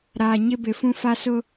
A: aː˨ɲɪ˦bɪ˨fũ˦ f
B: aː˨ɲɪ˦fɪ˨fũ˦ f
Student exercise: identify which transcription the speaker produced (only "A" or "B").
A